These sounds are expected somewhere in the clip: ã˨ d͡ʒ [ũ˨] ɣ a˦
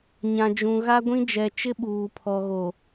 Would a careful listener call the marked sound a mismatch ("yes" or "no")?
no